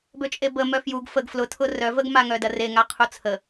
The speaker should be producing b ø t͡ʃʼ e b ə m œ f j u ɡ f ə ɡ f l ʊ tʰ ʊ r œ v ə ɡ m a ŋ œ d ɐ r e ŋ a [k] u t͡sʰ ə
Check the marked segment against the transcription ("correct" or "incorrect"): incorrect